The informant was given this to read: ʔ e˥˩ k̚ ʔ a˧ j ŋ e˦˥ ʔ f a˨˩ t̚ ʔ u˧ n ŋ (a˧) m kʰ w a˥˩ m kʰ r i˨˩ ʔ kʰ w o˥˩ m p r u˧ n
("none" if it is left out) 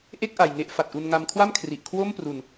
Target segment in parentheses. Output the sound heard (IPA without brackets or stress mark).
a˧